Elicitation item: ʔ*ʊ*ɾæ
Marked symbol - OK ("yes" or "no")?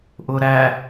yes